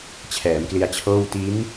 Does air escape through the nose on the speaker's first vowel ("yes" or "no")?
no